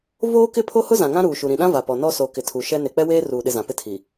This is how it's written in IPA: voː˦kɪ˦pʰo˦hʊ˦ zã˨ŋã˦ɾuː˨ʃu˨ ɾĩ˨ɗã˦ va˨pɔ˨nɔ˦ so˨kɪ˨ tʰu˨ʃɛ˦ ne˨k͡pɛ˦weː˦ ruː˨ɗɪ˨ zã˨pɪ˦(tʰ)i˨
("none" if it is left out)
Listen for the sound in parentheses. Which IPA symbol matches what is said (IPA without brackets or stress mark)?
tʰ